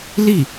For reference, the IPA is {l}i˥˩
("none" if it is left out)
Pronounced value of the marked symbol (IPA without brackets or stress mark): l